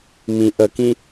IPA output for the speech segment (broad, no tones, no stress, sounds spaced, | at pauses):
m ĩ ʔ ə k ĩ